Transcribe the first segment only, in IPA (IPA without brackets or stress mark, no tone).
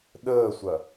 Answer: ɗ